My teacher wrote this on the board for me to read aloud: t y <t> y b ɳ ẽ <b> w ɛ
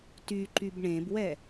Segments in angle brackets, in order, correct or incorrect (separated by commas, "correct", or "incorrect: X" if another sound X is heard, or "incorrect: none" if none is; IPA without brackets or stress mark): incorrect: ǃ, correct